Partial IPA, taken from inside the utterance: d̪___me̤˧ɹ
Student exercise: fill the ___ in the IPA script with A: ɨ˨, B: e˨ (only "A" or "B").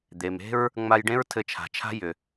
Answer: B